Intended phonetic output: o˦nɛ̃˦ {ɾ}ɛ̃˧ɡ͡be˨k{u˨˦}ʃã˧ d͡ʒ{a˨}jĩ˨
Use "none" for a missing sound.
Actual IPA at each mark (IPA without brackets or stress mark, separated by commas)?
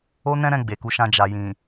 ɾ, u˨˦, a˨